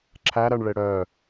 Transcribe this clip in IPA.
ǁʰæɾɜɳɭe ɽœ

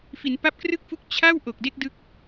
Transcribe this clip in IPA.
fi˩˦npa˦˥p̚krɯ˥˩k̚fu˦˥k̚ t͡ɕʰa˥˩w ʔo˨˩k̚de˥˩k̚ dɯ˦˥k̚

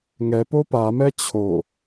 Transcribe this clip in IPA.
ŋɛpo pamɛ t͡ɕʰo

